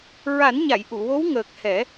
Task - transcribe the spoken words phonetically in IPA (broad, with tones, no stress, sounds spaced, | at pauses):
ɹ a˨˩˦ n ɲ a˨˩˨ j ʔ u˨˩˨ w o˧˥ w ŋ əː˨˩ k̚ h ɛ˨˩˦